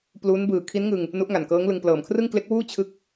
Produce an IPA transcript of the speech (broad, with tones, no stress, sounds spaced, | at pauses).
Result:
p l u˦˥ n b ɯː˨˩ kʰ i˦˥ n ŋ ɯ˧ ŋ | n u˦˥ ʔ ŋ a˨˩ n k ɤː˦˥ ŋ l ɯ˧ ŋ p l ɤː˨˩ m kʰ r ɯ˥˩ ŋ k l e˦˥ k̚ w uː˥˩ t͡ɕʰ ɯ˦˥ k̚